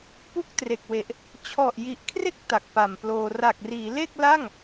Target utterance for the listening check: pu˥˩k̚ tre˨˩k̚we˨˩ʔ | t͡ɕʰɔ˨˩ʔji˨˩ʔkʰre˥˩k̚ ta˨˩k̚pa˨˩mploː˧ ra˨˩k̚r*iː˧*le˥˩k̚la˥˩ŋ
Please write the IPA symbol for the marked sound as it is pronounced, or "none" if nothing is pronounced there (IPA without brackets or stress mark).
iː˩˦